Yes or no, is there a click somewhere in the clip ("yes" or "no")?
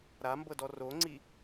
yes